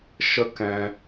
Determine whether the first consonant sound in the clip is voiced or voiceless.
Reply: voiceless